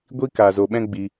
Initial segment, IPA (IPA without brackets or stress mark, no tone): ɡʷ